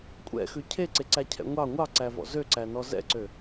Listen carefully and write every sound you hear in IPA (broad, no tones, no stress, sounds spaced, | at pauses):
kʷʼ ɛ̰ x ʉ cʰ e ǀ e ǀ æ cʰ ɛ̰ ŋʷ ɑ ŋʷ ɑ ǀ æ v ɔ̰ z ø ǀ æ n ɔ z ɛ̰ ǀ ø